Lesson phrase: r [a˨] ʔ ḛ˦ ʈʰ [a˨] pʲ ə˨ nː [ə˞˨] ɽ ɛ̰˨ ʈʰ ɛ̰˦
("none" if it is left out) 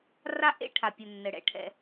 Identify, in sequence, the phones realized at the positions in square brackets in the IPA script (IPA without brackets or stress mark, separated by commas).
a˦, a˨, ə˨